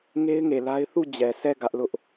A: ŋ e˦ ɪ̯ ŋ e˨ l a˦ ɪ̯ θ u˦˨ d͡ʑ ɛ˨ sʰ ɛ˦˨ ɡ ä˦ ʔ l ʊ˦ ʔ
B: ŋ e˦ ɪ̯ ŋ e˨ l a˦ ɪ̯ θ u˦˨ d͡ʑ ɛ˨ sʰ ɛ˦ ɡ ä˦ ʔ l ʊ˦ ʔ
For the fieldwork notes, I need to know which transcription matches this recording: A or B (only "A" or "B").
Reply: A